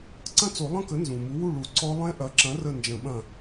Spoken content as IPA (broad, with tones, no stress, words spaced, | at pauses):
ǀɐ̃˥˩t͡so˨˩˦lˠə̃˥˩kə˩˥ nzũ˩mu˩˥wu˥˩ ɭu˨˩˦ǀɔ˦˥ lˠẽ˦˥ʔɐ˩˥ǁɐ̃˩˥rə˧˩ nd͡ʒə̃˨˩˦ɓɐ̃˧˩